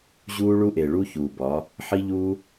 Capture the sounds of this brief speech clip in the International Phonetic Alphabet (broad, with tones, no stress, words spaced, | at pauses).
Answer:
ʑuː˦ɭu˦ʔe˨ɭu˦ çuː˨bɒ˨˦ | ħi˦ʎuː˦